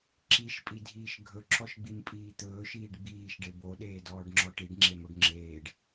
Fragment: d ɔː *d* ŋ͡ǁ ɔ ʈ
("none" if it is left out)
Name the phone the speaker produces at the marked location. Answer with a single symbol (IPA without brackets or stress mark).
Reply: ɖ